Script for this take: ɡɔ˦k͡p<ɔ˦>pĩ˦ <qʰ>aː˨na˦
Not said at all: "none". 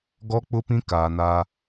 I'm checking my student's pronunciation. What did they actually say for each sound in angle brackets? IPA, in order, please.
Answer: ʊ˦, k

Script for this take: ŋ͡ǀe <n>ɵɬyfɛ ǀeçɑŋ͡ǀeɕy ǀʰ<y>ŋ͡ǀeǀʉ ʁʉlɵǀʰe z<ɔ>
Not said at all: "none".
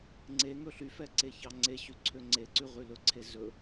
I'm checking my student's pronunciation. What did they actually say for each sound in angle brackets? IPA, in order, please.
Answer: ŋ, ø, ɵ

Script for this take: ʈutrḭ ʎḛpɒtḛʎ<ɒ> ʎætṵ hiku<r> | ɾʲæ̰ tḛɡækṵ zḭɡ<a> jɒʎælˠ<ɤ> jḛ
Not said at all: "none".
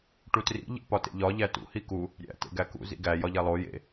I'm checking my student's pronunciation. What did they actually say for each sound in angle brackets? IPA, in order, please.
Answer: ɒ, none, æ, o

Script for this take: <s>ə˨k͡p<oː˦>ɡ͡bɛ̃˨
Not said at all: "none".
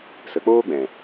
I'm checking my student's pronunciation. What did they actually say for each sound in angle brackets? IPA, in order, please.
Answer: s, oː˦

